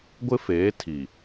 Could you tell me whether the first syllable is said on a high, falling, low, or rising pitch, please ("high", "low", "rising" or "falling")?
high